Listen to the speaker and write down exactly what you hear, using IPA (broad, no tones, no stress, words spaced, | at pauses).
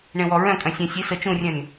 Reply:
ɳẽwɔɹœ̃kʼœ̃ sʲœ̃ sʲe sə t͡ʃũrʲœ̃n